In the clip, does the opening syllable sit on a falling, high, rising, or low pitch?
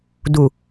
low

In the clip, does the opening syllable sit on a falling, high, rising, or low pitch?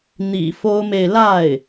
low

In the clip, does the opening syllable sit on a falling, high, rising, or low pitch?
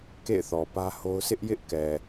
falling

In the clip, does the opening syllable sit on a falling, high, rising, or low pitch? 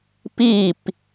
falling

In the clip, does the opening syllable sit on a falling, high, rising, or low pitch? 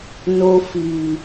high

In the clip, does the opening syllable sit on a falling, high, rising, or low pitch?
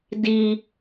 high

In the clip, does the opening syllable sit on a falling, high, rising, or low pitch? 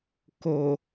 low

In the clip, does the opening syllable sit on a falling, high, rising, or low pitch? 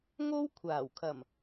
high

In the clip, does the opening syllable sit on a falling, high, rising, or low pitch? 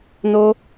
high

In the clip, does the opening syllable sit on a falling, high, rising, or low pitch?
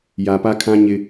low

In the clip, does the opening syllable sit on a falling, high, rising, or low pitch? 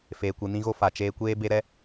low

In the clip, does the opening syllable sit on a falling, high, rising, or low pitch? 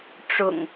low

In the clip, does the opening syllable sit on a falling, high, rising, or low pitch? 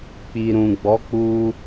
low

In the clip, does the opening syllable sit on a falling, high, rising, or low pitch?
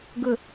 low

